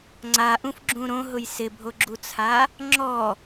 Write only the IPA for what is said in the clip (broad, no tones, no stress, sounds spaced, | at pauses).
ŋ͡ǀ a ʔ ũ f ɡ͡ǁ ũ ɾ õ ɦ ʊ j s ɪ bʱ o ɡ͡ǁ u t͡sʰ a | ŋ͡ǁ ɔ